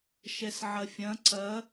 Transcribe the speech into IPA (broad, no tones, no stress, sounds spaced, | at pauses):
ʃ ɛ s ʕ ɐ fʲ ɐ̃ ǀ ɐ